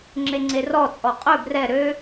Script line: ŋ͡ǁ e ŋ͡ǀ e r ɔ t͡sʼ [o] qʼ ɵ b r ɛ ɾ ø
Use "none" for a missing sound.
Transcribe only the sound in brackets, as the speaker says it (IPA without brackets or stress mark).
ɔ